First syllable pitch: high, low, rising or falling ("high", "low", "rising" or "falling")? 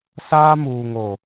high